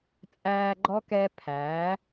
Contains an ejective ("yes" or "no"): yes